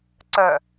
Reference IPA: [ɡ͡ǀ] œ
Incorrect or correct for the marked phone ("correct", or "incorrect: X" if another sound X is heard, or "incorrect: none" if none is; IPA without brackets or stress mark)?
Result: incorrect: ǀ